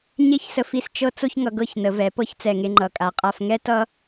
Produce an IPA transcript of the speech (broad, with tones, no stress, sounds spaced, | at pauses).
ɲ e˥˧ ç s ə˧ f i˧ s t͡ʃ ɤ˥ t͡s o˥ ç ŋ ʌ˧ ɡ ɤ˥˧ ç n ə˩˧ v ɛ˩˧ p ɤ˥ ç t͡s ɛ˧˩ ŋ e˧ ŋ͡ǃ ʌ˩˧ kʼ a˩˧ qʼ a˧ f ŋ ɛ˥ t ʌ˥